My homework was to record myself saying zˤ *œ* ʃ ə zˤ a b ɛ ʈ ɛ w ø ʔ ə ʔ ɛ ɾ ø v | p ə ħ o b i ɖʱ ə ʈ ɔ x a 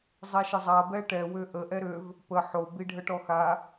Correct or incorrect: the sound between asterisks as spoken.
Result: incorrect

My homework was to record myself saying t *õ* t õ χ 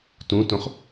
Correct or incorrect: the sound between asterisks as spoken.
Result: incorrect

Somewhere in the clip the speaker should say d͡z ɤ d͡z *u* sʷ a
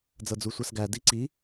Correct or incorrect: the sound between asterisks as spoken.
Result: correct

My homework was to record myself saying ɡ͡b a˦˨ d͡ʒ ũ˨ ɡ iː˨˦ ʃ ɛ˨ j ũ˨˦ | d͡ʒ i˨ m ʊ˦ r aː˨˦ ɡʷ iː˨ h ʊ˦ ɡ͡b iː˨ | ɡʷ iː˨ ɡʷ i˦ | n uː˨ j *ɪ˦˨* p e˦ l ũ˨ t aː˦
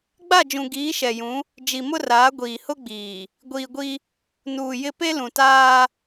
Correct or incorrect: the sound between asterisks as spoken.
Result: correct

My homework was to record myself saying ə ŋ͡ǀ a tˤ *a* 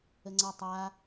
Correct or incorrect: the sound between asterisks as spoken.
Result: correct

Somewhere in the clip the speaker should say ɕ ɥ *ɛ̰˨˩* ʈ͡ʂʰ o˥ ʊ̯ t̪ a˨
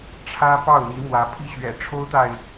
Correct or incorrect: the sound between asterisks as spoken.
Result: correct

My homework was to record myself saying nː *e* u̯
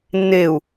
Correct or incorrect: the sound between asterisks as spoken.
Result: correct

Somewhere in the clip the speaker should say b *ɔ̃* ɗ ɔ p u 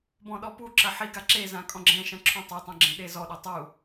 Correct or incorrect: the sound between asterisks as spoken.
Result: correct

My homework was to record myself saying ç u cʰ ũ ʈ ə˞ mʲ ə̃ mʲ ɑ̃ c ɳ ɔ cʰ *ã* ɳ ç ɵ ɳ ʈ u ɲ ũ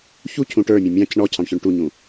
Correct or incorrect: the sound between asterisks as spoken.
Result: incorrect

